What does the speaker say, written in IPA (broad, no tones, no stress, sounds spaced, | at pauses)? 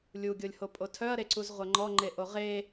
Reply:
lʲ u ɡʲ o lʲ h o pʼ o tʰ œ ɐ̯ ɾ e ǀ u z ʁʷ ɐ ŋ͡ǃ ɔ ŋ͡ǃ e ʔ o ʁ e